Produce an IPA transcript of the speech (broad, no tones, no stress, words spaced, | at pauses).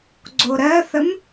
ɡ͡ǀoɾɜθəm